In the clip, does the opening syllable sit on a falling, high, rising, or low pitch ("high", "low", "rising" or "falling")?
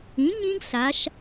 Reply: rising